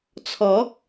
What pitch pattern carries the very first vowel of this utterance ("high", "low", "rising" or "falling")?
rising